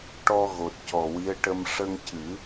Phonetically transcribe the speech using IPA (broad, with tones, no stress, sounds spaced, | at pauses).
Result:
ʈ ɔ˧ ɣ o˨˩ t̚ c ɔ˨˩ w i˧˥ ə̯ ʈ ə˧ m ʂ ə˧ ŋ c ɨ˨˩˦